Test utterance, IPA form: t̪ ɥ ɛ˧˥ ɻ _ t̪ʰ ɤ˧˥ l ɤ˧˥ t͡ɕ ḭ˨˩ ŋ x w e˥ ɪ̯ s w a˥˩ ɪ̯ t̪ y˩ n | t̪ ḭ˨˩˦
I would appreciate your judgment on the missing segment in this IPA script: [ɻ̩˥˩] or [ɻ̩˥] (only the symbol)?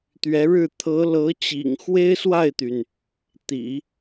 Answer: ɻ̩˥˩